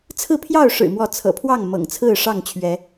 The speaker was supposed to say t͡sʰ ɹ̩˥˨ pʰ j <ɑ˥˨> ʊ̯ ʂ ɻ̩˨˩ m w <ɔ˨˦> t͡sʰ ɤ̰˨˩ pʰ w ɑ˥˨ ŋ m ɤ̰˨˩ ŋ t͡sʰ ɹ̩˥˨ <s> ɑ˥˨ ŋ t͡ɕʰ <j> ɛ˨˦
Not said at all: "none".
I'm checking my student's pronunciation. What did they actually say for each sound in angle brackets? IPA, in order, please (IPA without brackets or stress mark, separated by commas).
ɑ˥˨, ɔ˨˦, ʂ, ɥ